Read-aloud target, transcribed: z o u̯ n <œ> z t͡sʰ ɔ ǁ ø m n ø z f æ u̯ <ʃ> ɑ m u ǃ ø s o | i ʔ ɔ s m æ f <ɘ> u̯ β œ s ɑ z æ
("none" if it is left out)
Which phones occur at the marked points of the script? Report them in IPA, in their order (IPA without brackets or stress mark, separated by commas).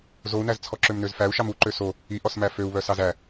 æ, ʃ, ø